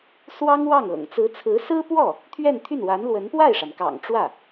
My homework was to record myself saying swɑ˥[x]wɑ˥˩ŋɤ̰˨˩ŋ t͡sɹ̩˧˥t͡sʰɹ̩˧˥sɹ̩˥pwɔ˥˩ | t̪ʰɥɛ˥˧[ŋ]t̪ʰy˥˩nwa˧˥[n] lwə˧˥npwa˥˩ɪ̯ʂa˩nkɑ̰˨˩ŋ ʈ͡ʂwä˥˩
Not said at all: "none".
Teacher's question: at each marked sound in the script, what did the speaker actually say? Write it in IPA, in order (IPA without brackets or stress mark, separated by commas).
ŋ, n, n